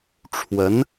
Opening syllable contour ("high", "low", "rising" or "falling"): rising